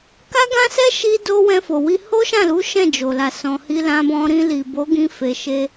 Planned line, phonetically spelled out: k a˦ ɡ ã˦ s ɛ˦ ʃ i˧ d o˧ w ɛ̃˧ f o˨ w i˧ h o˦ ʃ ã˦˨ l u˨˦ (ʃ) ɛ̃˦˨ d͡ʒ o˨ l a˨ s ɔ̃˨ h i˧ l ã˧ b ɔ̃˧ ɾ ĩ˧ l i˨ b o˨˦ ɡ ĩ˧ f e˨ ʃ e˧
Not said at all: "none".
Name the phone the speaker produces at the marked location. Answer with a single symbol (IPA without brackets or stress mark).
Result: ʃ